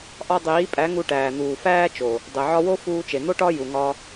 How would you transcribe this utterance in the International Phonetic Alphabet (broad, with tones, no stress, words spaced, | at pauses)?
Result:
ʔɒ˧dˤiː˨˦pʼæ˨˦ ŋu˧ʈæː˨n̪uː˨ fæː˦t͡ʃo˨ | dˤe˨ʕɒ˧wo˦ fuː˧t͡ʃe˨n̪o˦ʈɒ˦ ju˨ŋɒ˧